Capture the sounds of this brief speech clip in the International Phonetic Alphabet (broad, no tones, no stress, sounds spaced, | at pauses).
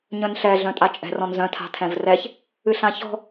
ɲ œ̃ n ɬ ɛ ɮ œ̃ tʼ a t͡ʃʼ ɛ̤ r ɔ̃ n z œ̃ tʰ a̤ tʰ ɛ̃ v r ɛ ç | ɨ ɬ ã ç ɔ̤